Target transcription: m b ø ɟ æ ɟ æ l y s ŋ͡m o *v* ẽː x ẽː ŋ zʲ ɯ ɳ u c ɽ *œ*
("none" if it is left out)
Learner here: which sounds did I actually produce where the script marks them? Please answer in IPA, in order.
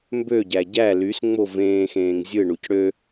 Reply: v, ø

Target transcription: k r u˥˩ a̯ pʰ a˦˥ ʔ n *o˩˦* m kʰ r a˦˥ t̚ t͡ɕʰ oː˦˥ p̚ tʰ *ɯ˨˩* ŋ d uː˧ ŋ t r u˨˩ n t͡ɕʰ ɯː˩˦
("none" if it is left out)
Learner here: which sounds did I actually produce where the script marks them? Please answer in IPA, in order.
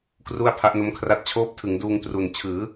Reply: o˦˥, ɯ˩˦

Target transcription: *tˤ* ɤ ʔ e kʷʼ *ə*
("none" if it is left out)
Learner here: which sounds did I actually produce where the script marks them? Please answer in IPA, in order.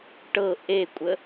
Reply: ʈ, ə

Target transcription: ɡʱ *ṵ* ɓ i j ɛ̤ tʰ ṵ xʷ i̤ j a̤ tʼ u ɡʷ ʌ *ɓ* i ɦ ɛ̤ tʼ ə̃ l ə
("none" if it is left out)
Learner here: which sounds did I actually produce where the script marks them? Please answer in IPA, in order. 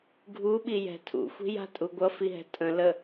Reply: u, f

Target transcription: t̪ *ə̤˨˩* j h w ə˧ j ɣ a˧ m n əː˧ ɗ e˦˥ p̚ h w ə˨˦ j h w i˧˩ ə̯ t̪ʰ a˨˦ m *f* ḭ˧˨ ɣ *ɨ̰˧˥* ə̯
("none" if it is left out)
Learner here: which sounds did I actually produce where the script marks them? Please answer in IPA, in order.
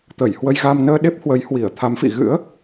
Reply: ə˧˩, f, ɨ̰˧˥

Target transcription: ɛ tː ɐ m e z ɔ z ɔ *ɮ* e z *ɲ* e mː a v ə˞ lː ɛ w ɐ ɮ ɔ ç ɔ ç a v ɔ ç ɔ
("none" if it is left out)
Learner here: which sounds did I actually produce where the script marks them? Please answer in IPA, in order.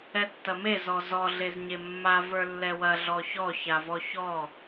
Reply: ɮ, ɲ

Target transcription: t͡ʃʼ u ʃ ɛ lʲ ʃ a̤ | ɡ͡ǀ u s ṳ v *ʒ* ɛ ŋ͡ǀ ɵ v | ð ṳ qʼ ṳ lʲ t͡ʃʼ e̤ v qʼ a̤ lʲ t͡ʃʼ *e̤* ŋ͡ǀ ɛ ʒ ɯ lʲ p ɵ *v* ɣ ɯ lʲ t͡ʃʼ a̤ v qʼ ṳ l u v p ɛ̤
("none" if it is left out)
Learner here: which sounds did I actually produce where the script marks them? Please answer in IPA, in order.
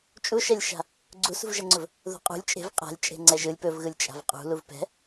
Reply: ʒ, e̤, v

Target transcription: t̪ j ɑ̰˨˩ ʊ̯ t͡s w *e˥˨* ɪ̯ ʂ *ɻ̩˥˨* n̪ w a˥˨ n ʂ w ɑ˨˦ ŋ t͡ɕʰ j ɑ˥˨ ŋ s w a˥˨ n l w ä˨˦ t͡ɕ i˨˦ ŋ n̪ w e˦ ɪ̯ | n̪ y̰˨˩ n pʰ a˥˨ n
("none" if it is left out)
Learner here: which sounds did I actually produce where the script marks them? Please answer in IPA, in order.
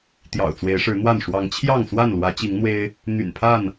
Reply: e˨˦, ɻ̩˨˦

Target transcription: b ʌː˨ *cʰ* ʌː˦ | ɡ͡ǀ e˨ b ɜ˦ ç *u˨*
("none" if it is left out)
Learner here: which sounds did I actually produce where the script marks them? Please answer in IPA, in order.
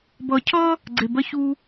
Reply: cʰ, u˦

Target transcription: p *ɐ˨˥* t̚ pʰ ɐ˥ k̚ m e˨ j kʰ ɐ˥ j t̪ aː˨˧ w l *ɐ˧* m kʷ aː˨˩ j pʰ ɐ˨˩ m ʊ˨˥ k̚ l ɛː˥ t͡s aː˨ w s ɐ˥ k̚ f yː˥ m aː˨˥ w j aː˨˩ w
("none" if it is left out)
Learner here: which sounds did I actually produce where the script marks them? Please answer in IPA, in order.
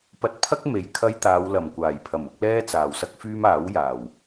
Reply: ɐ˧, ɐ˨˩

